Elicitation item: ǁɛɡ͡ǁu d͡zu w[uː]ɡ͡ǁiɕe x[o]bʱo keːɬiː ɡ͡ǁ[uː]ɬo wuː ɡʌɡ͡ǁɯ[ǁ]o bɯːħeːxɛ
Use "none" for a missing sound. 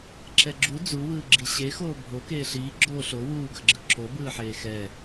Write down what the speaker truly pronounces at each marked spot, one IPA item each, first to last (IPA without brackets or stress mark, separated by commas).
ɯː, oː, oː, ǁ